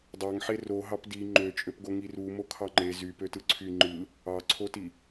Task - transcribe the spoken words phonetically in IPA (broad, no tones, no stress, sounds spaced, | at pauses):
dˤ ɑ ŋ ħ e r o ɦ ɑ p d i ŋ͡ǃ ø t͡ʃʼ ø p ɡ o ŋ i r u m o kʰ ɑ ŋ͡ǃ e z y p ø t ɯ ǀʰ y ŋ͡ǃ ɯ | ɑ ǀʰ o t i